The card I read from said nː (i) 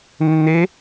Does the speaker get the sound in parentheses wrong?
yes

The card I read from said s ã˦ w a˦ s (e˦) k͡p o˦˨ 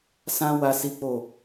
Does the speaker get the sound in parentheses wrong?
yes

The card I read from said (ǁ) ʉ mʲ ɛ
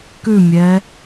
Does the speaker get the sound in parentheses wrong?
yes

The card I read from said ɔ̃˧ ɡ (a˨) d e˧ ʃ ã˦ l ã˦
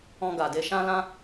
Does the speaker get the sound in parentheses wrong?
no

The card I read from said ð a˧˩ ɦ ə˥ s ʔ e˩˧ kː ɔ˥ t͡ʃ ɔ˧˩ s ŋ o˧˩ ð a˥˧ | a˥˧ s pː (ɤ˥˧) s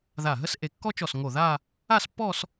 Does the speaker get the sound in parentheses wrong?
yes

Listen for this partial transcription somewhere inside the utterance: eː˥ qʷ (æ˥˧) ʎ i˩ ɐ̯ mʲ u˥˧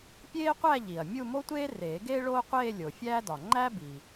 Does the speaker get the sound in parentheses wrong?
no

